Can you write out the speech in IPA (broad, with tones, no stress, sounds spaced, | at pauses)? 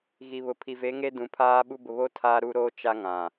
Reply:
ɣ i˨ β ʊ˨ pʰ i˨ v e˨˦ ŋ e˦ d ũ˨ pʰ aː˦ ɓ u˦ b ʊ˨ β o˦ tʰ aː˦ ɾ u˦ ɾ oː˦ t͡ʃ a˦ ŋ ã˨